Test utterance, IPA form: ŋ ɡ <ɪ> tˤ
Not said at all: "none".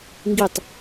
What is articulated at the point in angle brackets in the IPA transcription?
i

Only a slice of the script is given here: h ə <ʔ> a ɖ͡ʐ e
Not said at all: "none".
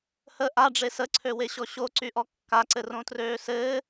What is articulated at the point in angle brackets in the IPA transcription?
ʔ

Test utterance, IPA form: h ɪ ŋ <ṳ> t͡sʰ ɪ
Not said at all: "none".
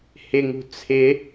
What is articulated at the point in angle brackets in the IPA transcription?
ṳ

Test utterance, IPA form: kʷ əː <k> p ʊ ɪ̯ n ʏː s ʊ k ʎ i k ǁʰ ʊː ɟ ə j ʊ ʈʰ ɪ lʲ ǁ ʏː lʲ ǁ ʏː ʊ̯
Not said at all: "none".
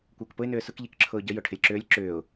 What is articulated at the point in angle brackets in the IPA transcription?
k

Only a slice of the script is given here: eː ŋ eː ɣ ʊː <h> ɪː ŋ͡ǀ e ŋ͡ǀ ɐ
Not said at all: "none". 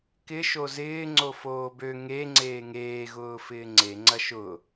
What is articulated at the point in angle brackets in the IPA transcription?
f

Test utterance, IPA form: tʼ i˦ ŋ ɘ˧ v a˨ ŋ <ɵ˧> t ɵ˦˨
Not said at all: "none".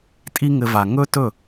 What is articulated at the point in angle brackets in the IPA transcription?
ɵ˦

